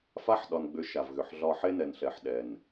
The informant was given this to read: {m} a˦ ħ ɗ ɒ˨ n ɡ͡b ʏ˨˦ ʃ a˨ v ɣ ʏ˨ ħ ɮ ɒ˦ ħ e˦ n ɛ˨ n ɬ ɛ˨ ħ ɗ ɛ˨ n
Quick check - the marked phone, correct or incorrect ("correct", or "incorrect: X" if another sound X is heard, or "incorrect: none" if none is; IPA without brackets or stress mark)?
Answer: incorrect: f